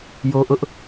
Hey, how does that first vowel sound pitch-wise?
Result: high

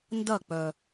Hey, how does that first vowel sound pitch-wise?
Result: falling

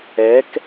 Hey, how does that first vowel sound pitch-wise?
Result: rising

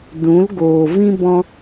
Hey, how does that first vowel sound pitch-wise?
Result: rising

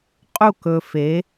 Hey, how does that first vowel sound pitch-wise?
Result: falling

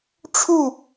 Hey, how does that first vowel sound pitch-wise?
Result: falling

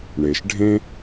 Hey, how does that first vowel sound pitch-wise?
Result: low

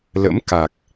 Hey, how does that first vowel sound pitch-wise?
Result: rising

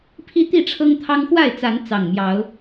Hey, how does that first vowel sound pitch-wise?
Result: high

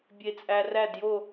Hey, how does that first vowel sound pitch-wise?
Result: low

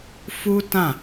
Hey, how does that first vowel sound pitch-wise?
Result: high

